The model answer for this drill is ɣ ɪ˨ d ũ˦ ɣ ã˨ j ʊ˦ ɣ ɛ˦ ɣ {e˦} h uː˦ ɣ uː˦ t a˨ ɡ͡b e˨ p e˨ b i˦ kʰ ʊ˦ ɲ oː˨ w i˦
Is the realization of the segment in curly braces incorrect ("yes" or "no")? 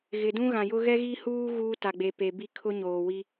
yes